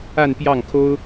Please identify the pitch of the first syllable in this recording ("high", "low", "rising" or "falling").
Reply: falling